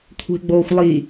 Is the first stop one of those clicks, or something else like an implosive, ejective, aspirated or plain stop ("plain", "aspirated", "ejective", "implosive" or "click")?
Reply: aspirated